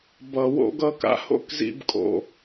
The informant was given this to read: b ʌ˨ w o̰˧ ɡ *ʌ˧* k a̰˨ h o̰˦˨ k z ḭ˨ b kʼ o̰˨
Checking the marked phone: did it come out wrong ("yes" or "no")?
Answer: no